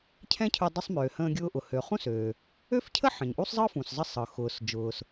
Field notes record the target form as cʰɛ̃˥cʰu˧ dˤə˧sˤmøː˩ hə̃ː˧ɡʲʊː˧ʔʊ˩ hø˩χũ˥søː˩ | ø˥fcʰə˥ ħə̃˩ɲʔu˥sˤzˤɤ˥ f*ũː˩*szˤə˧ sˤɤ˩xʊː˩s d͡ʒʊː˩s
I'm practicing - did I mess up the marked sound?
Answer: yes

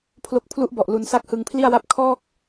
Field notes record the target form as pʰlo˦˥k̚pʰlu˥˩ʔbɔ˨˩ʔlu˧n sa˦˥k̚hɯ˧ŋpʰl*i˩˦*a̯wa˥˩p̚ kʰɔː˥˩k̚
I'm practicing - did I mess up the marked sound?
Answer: yes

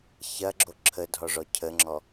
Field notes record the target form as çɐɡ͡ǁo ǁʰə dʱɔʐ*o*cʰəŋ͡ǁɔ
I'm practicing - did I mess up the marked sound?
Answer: yes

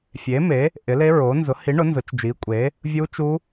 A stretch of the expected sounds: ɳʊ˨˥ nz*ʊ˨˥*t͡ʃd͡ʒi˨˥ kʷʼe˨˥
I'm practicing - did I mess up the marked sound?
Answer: no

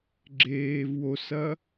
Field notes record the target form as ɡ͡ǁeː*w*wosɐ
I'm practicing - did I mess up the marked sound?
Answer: yes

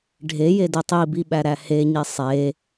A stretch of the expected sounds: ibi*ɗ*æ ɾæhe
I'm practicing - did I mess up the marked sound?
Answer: yes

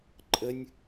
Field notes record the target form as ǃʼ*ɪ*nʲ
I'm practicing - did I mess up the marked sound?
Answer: yes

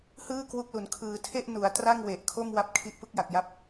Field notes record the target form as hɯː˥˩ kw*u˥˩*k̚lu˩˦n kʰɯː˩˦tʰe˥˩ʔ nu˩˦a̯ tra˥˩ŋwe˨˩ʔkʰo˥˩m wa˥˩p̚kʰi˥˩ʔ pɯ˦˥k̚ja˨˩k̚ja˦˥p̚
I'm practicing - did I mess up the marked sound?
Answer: yes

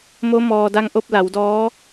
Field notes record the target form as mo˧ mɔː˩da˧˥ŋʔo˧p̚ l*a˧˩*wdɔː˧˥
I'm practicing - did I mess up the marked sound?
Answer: yes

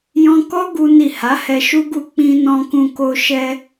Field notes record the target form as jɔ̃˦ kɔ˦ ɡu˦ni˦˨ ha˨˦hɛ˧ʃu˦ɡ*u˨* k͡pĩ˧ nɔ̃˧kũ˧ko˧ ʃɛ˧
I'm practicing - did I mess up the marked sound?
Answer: yes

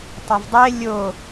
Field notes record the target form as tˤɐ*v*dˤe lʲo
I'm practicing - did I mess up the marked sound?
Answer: no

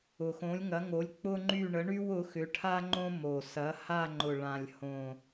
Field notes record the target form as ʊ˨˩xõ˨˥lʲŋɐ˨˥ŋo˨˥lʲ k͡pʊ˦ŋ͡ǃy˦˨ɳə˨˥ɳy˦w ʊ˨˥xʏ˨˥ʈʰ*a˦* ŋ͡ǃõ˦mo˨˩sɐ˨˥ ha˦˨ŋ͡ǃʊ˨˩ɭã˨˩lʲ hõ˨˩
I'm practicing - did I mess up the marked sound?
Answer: no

